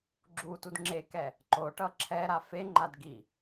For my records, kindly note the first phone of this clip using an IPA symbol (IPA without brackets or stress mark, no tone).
ɡ͡ǁ